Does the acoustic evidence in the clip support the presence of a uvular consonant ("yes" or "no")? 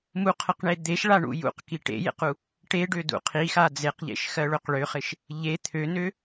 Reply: yes